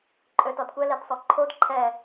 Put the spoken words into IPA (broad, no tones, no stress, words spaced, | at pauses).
ǃʼøtɔdkʷɛ ledsˤoǃʰod ǃʰɛ